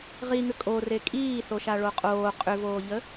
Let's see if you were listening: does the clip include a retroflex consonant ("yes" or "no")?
yes